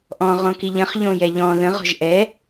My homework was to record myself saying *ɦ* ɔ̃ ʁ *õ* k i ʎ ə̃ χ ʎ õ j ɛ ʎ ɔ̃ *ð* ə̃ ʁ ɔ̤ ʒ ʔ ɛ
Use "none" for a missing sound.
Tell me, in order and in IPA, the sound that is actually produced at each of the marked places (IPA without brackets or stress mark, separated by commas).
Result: ʔ, õ, ð